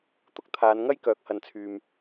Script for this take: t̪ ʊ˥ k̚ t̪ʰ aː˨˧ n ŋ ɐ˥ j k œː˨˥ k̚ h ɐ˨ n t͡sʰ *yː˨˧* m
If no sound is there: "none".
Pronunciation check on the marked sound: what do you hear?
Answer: yː˨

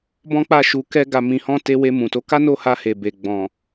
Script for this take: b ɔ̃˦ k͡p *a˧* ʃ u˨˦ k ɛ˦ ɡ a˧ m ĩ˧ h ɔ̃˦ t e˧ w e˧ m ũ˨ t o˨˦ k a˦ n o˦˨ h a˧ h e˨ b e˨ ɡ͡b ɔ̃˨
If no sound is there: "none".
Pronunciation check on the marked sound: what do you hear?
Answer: a˦˨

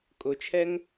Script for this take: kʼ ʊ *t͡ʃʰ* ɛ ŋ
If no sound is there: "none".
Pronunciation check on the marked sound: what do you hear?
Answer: t͡ʃʰ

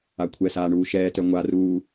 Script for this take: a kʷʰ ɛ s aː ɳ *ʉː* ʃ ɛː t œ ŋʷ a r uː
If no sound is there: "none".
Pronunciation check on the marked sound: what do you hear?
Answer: uː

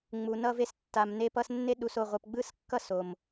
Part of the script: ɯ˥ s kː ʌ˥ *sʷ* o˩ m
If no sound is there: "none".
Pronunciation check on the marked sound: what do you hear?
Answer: s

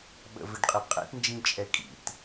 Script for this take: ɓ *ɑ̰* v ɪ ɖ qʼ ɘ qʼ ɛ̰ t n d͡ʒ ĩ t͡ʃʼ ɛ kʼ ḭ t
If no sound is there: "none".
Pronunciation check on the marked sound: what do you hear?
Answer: ə̰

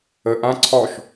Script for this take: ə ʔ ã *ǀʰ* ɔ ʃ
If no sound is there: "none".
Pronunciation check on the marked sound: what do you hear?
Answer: ǀʰ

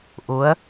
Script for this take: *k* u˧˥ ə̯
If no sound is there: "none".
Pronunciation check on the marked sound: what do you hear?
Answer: ʔ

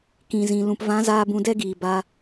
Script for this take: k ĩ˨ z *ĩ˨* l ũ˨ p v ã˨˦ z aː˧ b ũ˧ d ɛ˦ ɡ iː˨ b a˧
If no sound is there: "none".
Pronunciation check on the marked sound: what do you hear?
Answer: ĩ˨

